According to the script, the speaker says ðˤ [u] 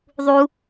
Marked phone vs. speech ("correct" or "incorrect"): correct